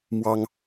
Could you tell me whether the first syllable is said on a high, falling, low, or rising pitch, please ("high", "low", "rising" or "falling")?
high